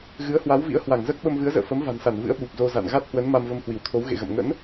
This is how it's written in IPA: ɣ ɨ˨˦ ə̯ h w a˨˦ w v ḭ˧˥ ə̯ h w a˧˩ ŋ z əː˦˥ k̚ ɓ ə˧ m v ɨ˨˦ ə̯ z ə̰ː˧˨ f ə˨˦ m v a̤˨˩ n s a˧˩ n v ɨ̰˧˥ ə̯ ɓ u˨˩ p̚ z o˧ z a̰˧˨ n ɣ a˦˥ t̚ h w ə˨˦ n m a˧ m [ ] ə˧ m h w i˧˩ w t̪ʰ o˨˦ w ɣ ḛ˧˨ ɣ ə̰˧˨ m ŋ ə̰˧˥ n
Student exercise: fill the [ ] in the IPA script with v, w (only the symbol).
v